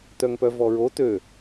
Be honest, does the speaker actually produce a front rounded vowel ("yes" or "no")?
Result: yes